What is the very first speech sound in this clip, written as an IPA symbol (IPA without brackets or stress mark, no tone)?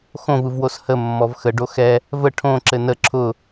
x